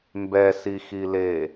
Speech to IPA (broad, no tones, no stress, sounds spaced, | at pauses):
m b ɛ s i x i l e